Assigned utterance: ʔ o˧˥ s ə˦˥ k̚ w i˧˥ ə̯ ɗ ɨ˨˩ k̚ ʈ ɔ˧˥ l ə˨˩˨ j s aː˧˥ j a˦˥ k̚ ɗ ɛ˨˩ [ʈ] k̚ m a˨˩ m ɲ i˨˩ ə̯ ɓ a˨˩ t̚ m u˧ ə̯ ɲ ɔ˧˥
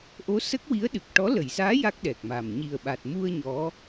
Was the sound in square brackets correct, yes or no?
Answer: no